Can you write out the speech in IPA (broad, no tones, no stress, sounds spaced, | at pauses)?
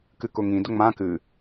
k ɨ k ʊ ŋ ĩ d ʊ ŋ͡m ã k ɨ